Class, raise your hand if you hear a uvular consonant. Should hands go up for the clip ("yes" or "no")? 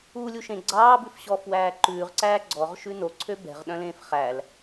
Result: yes